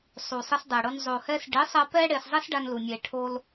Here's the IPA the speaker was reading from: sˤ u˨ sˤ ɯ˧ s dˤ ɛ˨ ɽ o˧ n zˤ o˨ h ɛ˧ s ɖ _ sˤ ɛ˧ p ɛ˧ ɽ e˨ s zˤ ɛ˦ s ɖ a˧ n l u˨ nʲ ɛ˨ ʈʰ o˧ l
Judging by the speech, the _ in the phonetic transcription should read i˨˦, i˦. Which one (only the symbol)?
i˨˦